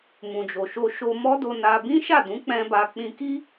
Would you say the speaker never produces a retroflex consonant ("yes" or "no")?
yes